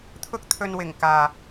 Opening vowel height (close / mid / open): close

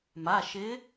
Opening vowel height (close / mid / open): open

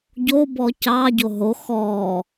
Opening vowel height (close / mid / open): mid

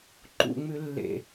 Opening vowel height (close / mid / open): close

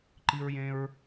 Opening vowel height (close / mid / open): close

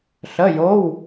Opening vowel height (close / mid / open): mid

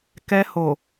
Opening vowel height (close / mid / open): mid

